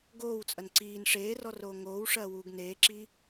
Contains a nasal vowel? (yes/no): no